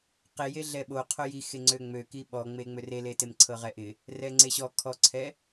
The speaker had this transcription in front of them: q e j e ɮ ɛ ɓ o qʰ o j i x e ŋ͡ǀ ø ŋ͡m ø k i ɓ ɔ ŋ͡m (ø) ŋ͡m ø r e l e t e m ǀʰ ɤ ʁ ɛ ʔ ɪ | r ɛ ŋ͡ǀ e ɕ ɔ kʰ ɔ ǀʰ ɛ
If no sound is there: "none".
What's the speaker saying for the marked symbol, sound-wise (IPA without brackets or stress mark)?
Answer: e